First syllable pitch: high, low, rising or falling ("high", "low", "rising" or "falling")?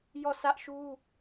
falling